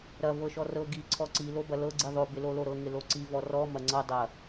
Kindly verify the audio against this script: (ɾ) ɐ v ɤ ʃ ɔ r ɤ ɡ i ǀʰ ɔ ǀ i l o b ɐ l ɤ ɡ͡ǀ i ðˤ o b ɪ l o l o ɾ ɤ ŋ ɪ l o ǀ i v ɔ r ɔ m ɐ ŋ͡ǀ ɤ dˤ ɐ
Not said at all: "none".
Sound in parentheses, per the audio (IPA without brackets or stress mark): ɾ